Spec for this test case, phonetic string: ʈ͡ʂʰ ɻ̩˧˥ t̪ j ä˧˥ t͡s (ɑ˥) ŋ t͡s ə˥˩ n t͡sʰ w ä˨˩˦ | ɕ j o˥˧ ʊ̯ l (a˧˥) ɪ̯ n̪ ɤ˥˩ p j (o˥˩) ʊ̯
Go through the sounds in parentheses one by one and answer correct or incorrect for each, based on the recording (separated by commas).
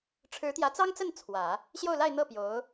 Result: correct, incorrect, incorrect